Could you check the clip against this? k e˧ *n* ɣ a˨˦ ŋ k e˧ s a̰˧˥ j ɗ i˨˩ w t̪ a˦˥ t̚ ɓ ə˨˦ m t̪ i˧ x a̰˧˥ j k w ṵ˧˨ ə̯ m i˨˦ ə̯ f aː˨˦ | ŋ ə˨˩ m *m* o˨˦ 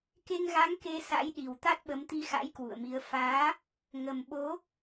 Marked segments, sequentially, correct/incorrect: incorrect: ŋ, incorrect: ɓ

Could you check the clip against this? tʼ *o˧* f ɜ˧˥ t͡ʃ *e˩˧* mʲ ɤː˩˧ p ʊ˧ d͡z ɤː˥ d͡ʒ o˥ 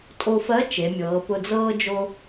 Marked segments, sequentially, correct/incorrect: correct, correct

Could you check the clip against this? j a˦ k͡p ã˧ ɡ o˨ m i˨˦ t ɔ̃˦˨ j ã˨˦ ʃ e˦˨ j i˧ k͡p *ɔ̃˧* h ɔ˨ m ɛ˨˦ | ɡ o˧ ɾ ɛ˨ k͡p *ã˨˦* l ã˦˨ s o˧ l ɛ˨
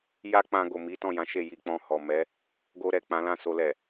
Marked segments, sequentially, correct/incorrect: correct, correct

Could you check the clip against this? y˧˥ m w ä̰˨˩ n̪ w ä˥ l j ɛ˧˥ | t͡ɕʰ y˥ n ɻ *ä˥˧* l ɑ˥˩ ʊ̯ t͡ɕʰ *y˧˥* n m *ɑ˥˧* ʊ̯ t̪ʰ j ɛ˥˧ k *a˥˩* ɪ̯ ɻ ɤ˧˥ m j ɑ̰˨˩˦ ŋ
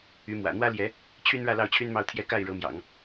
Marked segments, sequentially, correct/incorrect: correct, incorrect: y˥, correct, correct

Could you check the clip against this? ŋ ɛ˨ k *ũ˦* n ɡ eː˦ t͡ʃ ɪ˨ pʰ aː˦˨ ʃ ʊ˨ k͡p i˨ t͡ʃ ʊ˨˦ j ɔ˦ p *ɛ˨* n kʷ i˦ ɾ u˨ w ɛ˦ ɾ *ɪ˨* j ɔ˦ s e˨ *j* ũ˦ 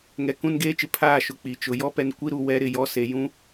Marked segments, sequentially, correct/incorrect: correct, correct, correct, correct

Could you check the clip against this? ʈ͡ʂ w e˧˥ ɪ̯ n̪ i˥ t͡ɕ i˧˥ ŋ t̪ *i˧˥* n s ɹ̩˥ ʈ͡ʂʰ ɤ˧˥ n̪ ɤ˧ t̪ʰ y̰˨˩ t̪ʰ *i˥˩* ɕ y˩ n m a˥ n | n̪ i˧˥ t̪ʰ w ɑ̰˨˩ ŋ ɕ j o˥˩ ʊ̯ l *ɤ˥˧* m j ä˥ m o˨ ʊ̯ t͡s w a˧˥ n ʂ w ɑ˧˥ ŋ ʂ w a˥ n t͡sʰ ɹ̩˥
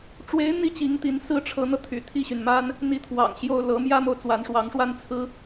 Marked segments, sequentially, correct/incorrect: correct, correct, incorrect: ɤ˧˥

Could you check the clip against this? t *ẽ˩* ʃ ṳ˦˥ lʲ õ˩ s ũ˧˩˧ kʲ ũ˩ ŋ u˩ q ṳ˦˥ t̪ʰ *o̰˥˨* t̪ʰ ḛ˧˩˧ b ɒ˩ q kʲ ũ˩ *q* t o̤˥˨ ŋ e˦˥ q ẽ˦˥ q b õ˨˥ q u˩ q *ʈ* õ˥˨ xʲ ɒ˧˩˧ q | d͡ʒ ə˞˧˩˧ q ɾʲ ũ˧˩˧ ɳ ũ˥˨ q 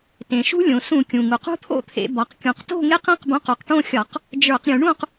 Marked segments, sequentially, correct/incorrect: correct, correct, correct, correct

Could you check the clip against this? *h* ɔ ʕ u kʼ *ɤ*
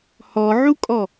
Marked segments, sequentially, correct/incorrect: correct, incorrect: ɔ

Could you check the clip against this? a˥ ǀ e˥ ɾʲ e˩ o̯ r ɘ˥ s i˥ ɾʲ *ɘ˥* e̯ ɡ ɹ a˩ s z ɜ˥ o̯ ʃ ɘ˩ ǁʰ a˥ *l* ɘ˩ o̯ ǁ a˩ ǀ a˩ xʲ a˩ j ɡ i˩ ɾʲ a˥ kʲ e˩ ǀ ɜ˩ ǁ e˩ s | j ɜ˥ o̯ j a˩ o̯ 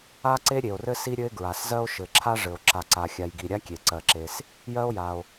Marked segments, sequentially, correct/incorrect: correct, incorrect: ʐ

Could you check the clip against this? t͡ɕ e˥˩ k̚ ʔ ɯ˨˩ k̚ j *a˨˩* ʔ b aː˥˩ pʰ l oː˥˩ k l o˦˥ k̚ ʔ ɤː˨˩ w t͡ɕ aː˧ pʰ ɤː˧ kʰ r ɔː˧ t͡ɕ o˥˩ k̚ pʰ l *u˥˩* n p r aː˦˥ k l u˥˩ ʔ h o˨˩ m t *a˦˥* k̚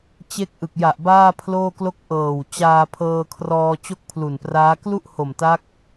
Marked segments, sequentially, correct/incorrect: correct, incorrect: u˨˩, correct

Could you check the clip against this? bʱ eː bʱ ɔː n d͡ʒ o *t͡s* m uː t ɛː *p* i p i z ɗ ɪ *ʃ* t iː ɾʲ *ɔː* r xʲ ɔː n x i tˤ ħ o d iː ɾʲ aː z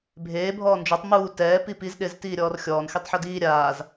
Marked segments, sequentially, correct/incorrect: incorrect: tˤ, correct, incorrect: z, correct

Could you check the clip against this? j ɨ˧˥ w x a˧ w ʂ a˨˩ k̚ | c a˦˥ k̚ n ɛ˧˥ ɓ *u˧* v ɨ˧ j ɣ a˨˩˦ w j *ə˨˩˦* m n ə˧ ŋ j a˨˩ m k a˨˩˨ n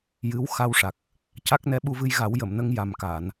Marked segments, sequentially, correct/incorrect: correct, incorrect: ə˨˩˨

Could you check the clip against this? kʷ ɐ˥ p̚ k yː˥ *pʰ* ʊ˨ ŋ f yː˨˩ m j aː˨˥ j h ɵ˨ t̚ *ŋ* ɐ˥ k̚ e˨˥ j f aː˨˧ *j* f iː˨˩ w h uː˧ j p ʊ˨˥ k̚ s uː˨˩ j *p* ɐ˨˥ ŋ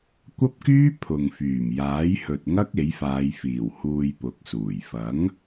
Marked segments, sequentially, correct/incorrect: correct, correct, correct, incorrect: f

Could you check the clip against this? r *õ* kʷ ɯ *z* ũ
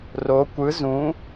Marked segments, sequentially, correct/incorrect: incorrect: o, correct

